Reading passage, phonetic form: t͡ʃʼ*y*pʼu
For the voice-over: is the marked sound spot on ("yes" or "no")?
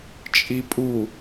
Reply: no